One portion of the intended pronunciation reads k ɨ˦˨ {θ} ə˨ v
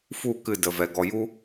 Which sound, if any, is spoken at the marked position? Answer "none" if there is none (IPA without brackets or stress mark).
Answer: d